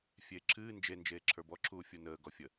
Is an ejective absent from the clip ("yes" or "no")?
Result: yes